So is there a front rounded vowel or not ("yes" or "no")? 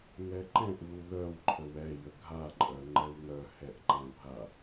yes